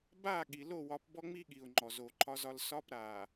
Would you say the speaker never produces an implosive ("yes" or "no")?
no